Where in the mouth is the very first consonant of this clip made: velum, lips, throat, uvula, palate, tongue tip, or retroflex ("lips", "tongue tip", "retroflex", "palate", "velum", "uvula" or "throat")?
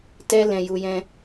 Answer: tongue tip